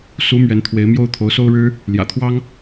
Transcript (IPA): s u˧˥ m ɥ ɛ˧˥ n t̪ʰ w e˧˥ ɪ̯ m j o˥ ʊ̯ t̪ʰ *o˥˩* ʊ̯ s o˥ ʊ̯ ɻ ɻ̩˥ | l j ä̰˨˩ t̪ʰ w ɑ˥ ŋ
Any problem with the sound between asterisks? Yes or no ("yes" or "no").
yes